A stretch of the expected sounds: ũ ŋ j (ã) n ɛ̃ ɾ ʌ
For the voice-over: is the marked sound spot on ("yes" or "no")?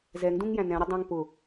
no